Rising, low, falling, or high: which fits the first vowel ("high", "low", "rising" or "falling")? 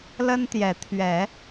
high